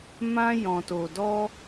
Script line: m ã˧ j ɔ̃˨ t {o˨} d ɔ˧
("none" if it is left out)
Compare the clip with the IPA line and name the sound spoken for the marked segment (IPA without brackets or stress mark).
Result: o˨